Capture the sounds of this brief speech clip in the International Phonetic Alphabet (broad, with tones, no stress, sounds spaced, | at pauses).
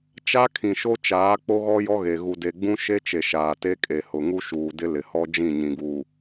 t͡ʃ a˦ kʰ ĩ˨ ʃ o˦ t͡ʃ aː˨˦ k͡p o˦ ɣ ɔ˦ j ɔ˦ ɣ e˨ ɣ u˨ d e˨ ɡ͡b ũ˦ ʃ e˦ t͡ʃ e˨ ʃ aː˨ t e˦ kʼ e˨ h ʊ˨ ŋ u˦ ʃ uː˨ d ɪ˦ l ɪ˨ h ɔ˦ d͡ʒ ĩ˦˨ ɲ ĩ˨ ɡ uː˨